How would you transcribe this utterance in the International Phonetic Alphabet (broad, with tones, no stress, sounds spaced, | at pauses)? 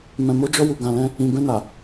m ɛ̃˨ m o˨˦ d͡ʒ ɔ˧ w u˨ ɡ ã˨ l ɛ̃˧ | ĩ˨ b ɛ̃˧ n a˨